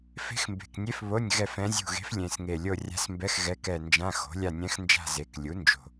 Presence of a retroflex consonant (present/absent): absent